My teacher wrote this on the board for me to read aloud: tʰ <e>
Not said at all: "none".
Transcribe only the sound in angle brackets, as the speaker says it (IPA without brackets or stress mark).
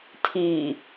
i